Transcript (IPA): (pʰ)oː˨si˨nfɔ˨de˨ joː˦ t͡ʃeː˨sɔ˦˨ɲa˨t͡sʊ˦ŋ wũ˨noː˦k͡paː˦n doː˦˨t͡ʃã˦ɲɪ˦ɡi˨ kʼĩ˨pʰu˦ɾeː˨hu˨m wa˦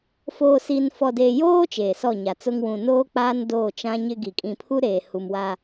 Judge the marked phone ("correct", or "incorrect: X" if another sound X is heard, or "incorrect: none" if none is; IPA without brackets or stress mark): incorrect: f